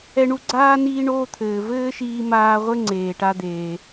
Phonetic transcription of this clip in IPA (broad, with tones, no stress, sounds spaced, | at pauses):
ɛ˧ ɳ u˧ ɡ͡ǀ aː˥ n iː˧ ɳ oː˧ t̪ʰ ɘː˩ v ɘː˥ ʃ iː˧ m aː˧ ʁʷ ɘ˥ ŋ͡ǀ eː˩ ʈ a˧ d̪ eː˩